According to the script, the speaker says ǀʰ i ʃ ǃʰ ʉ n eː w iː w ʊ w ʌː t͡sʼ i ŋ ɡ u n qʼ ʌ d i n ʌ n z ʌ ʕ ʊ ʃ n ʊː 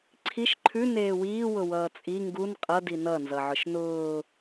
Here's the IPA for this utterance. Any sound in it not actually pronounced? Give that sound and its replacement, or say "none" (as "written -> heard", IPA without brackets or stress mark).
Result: none